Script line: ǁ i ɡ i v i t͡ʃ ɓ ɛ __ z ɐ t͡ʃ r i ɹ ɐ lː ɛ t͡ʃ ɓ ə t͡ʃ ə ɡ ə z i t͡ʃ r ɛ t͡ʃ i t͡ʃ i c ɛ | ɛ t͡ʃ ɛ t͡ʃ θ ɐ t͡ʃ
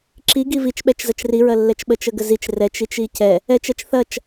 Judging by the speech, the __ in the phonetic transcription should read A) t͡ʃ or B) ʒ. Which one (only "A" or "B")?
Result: A